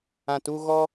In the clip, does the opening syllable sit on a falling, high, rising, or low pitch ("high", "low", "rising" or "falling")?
low